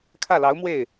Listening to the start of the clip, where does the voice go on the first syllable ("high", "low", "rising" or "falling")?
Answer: falling